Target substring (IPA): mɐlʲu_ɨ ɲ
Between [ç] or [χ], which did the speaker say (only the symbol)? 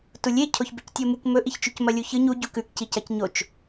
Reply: ç